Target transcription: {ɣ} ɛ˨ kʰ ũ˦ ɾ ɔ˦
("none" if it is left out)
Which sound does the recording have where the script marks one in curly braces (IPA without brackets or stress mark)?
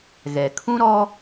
ɣ